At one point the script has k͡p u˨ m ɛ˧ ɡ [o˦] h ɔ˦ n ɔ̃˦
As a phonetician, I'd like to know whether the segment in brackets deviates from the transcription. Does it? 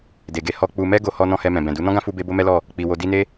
no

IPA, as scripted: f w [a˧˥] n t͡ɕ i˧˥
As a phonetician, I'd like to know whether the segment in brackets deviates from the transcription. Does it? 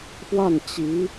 yes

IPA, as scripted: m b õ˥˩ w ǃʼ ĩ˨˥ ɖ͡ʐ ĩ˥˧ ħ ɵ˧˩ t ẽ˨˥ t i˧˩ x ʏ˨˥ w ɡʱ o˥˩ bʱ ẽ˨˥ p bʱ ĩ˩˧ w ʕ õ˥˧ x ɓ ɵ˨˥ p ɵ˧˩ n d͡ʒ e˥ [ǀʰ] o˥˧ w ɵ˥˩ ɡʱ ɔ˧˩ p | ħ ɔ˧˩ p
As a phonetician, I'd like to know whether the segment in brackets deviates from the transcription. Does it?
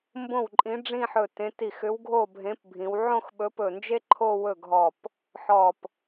yes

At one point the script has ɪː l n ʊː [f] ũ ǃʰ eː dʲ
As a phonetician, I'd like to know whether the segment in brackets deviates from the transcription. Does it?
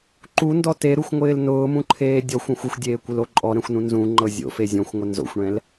yes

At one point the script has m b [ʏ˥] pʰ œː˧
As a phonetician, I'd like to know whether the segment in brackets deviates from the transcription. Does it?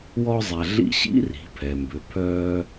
yes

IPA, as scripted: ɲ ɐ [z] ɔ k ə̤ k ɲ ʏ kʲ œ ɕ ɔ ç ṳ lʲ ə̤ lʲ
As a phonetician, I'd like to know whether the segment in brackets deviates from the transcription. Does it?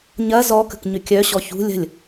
no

